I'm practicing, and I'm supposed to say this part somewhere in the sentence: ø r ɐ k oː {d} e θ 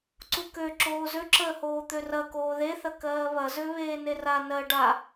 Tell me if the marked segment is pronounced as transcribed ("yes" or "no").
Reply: no